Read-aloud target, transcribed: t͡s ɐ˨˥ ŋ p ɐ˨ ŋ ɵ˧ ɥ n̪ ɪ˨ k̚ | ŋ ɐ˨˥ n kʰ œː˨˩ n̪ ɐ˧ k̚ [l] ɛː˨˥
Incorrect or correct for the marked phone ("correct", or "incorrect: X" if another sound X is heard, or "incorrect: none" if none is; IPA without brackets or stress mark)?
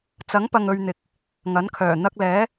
correct